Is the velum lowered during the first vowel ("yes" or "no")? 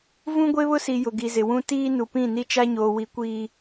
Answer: yes